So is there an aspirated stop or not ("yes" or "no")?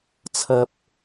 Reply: yes